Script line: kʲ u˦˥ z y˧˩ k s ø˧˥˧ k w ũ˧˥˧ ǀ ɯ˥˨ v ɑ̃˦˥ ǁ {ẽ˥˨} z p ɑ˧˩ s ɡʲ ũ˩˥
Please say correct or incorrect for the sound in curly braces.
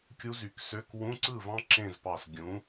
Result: correct